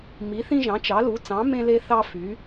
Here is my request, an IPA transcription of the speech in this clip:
m i˨˦ θ ĩ˦ ʒ ɑ̃˨˦ t͡ʃ ɑ˨˦ l u˨˦ t͡s ɑ̃˨˦ m ẽ˦ l e˦ θ ɑ˦ f y˨˦

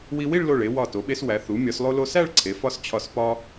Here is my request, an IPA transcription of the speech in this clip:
w i˧ w i˥˧ ɭ l o˧˩ ɭ e˩˧ w ɒ˧˩ t o˩˧ ɓ e˧ s w æ˩˧ θ u˩˧ mʲ ɒ˩˧ s lˠ o˧ l o˧ s æ˥˧ ɭ ǀʰ e˩˧ f ɒ˧ s t͡ɕʰ ɒ˧˩ s p ɒ˥

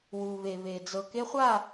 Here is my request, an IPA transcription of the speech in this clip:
w u˨ β e˨ β e˨ d͡z ɤ˨ k e˦ χʷ a˦˨

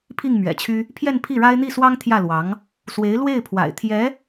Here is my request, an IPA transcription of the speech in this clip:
pʰ i˥˩ ŋ m ɥ ɛ̰˨˩ t͡ɕʰ y˥ | pʰ j ɛ˥˧ n pʰ i˥˩ ɻ a˥ ɪ̯ n̪ i˥˩ s w ɑ˥ ŋ t̪ʰ j ä˥˩ l w ɑ˧˥ ŋ | s w e˧˥ ɪ̯ l w e˥˩ ɪ̯ pʰ w a̰˨˩ ɪ̯ t̪ʰ j ɛ˧˥

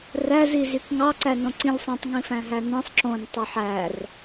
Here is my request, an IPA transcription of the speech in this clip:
r æ z i z y k ŋ ɑ ǀ æ n õ ǀ ĩ lʲ sˤ ũ tˤ ŋ ĩ f æ̃ ɦ æ n ĩ sˤ ǁ õ n tˤ y ħ æ r

